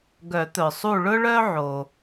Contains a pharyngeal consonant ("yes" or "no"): yes